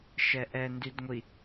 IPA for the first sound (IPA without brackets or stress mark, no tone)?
ʃ